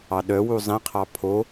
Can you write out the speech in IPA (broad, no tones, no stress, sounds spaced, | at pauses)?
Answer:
ɑ ɗ œ w u zˤ ĩ qʰ ɑ pʰ o